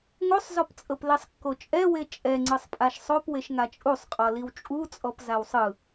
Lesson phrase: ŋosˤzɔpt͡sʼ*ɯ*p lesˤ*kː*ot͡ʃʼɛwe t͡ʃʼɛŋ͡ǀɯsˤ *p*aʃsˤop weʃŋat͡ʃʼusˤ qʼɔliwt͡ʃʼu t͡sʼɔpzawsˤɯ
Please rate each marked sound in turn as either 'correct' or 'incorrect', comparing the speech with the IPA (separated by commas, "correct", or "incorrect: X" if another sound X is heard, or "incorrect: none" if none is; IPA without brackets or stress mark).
incorrect: ɤ, correct, incorrect: pʼ